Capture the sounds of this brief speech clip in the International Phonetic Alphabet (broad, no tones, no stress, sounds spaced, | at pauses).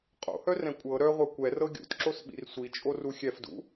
qʼ o̰ h œ r ɛ̃ kʷʼ ɤ ɾ œ ʁʷ œ kʷ ɛ r ɤ ɡʲ ṵ t ǁ o s ɓ ḭ r sʷ i t͡ʃʼ o r u xʲ ɛ f d ṵ